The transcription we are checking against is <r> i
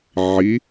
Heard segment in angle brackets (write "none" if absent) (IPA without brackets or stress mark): ʕ